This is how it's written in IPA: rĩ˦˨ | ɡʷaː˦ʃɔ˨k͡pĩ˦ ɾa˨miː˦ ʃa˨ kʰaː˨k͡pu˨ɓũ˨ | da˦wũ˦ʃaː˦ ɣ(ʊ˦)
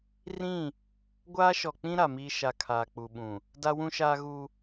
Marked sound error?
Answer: yes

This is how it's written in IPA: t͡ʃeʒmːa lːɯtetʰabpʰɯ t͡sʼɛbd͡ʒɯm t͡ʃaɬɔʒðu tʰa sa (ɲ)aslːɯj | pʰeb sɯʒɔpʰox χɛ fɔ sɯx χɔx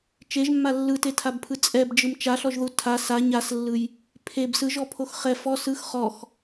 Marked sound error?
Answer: no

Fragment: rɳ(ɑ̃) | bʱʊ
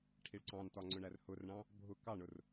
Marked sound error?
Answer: no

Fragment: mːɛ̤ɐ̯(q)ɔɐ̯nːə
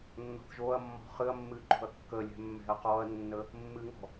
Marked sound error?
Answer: no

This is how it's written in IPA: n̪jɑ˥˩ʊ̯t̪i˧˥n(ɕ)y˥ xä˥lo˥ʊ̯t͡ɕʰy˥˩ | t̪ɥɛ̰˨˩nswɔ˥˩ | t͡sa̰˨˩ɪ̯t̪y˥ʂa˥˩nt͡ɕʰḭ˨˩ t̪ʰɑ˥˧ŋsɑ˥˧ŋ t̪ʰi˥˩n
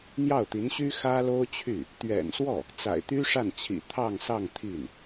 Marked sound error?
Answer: no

